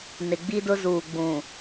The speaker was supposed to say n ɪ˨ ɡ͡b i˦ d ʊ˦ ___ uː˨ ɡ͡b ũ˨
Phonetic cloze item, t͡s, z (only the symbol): z